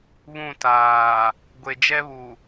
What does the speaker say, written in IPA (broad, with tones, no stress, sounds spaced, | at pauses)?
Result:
β ũ˦˨ t aː˨ | ɡʷ e˨ d͡ʒ ɛ˦ β u˨